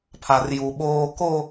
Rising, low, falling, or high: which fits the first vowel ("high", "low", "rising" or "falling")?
low